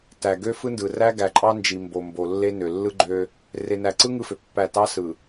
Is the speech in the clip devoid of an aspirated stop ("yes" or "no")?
yes